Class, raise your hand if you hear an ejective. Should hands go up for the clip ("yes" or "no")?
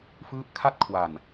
no